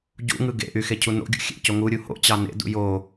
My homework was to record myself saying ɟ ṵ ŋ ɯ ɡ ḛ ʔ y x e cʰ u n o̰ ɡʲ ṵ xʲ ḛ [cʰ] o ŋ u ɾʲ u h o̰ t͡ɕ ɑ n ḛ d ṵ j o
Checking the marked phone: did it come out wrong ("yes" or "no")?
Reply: yes